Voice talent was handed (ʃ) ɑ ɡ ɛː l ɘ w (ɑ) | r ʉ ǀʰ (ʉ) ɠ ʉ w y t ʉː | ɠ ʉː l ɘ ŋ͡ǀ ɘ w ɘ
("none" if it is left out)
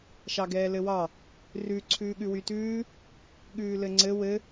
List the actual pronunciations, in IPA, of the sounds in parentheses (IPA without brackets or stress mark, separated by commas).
ʃ, ɑ, ʉː